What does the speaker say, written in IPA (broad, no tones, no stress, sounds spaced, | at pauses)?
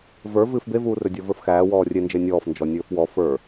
v ə˞ v ɨː f b e v uː r ɵ dʲ ɔ v ə˞ f x æː w ɔː rʲ e n d͡ʒ e nʲ ɔː f n d͡ʒ ɔ nʲ ɵː f w ɔ f ə˞